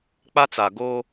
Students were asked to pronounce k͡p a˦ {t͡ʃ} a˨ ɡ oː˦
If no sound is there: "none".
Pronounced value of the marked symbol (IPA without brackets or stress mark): t͡s